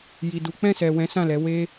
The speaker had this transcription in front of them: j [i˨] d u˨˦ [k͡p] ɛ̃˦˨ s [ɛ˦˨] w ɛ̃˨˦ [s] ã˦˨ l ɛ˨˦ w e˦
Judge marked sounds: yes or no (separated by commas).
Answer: yes, yes, no, yes